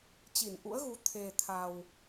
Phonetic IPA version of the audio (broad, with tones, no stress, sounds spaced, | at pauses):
t͡ɕ i˧˩ n ʔ ṵ˧˥ ə̯ ɣ u˨˦ t̪ʰ e˨˩ t̪ʰ a˨˩ w